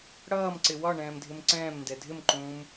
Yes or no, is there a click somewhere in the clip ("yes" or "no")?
yes